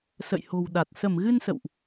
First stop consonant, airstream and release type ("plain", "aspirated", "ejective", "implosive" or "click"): implosive